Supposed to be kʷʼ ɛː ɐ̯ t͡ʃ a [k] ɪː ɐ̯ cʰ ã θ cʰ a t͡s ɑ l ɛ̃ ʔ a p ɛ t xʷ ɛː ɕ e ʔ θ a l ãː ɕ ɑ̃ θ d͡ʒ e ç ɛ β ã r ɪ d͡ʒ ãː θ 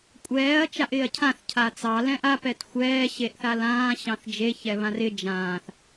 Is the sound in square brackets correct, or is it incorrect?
incorrect